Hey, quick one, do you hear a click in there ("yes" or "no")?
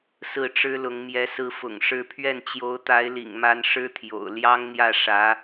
no